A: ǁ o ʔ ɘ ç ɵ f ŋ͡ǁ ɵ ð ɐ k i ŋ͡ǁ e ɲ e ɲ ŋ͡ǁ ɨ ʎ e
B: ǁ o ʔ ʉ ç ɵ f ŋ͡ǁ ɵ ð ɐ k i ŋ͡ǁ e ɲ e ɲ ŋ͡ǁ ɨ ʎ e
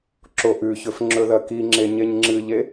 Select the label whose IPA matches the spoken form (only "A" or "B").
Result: B